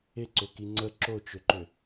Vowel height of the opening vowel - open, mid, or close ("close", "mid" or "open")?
close